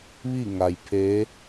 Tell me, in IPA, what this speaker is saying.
ʋ i˥˨ ŋ a˩ j pʰ e˧˥

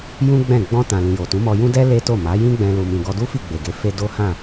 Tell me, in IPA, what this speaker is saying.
j ũ˦ ɡ͡b ɛ̃˦˨ ɡ͡b ɔ̃˧ t ã˨ l ĩ˨ j o˨ t ũ˨˦ m ɔ˧ j ũ˦ d ɛ˦ l e˦ t o˦˨ m a˨˦ j ĩ˦ ɡ͡b ɛ̃˧ l u˨ m ĩ˨ ɡ ɔ˧ d u˦ f i˦˨ ɡ͡b e˨ ɡ e˧ f e˦ d o˦ h ã˦˨

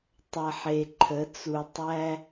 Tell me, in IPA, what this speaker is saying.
tˤ ɐ˨ ħ e˨ ǃʰ ə˨˦ t͡s u˨ tˤ æ˦

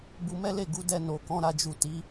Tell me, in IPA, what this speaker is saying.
b u˧ m ɛ˦ l e˦˨ ɡ u˨˦ d ɛ˧ n o˨ k ɔ̃˧ ɾ a˧ d͡ʒ u˨ t i˨˦

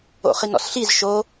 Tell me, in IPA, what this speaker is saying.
o̰ χ i n ɔ̰ s ɬ i z ʃ o

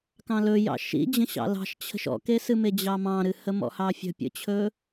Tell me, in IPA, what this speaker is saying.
k ɑ̃ l ɵ j ɑ̰ ʃ ḭ d͡ʑ ə̃ ɕ ɑ̰ l ɑ̤ ʃ t͡ɕʰ ə̤ ʃ ɔ̰ k e s ɨ m e d͡ʑ ɑ m ɑ̃ ɾ ɨ h ə m ɔ̰ h ɑ fʲ ə̤ pʲ ə̰ t͡ɕʰ ɵ

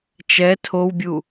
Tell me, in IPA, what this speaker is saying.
t͡ʃ ɛ tʰ o w bʲ u

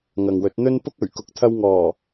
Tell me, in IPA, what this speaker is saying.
ŋ ɐ˨ ŋ w ɵ˨˥ t̚ n̪ ɵ˥ n p ʊ˥ k̚ ɵ˨˩ ɥ k ʊ˨ k̚ t̪ʰ ɐ˧ w ŋ ɔː˨˩

